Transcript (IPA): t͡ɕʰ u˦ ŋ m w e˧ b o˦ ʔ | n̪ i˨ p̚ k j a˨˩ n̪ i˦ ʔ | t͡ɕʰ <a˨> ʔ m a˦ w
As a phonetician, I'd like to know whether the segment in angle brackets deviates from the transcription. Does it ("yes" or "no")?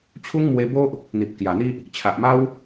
no